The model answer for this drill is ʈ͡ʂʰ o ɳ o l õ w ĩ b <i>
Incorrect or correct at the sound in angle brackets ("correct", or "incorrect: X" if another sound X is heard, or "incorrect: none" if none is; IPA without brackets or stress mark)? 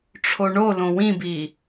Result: correct